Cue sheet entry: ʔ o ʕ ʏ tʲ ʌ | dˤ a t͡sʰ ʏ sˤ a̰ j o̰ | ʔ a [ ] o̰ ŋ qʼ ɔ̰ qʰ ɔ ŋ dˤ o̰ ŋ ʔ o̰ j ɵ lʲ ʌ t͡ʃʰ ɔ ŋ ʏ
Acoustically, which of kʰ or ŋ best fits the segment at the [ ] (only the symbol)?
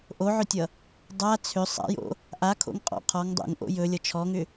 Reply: kʰ